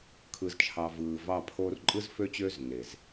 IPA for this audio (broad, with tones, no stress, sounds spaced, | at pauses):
kʰ ɯ˨ z t͡ʃʰ ɑ˨ v ɯː˨ v ɑ˦˨ pʰ oː˦ r ǃʼ ɯ˦ z f ø˦ t͡ɕ øː˦ z nː e˨ z